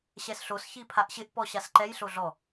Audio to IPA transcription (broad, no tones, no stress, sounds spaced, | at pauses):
ɕ ɛ s ɬ o s ç i pʰ a ʔ ɕ ɪ ʔ p ɔ ɕ a s ǃ ɛ j ɬ o ɮ ɔ